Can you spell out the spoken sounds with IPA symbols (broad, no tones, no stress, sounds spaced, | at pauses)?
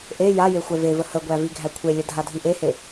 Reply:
ʔ e j a j e xʷ ɛ v e v ə h ə ɡʷ æ v i ɡʱ æ kʷʰ e lʲ ə dʱ a dʱ i ʔ e h e